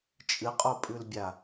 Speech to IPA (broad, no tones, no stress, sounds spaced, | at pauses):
t͡ʃʼ ɨ qʼ o pʼ ʉ l bʲ a